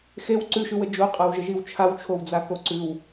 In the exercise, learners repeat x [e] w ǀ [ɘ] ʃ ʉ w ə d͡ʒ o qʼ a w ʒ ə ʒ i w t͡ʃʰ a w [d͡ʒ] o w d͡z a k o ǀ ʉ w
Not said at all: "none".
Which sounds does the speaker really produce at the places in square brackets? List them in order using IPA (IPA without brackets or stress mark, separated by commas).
e, ʉ, t͡ʃʰ